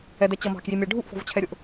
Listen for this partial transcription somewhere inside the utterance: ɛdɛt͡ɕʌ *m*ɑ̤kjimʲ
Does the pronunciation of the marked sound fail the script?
no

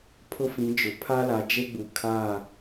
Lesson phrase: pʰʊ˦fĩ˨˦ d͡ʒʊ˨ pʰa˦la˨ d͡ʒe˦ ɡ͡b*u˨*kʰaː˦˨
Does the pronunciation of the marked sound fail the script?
no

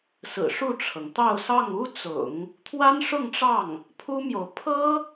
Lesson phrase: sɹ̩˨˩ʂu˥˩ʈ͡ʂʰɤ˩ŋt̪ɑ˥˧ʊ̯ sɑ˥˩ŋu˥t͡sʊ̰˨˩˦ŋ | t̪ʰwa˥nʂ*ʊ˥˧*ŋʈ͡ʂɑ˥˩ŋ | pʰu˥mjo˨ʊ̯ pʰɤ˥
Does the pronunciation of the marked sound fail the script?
no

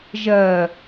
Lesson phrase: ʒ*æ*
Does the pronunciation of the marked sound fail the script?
yes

